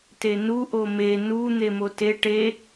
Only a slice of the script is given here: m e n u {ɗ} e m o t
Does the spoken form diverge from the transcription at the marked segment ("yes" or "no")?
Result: yes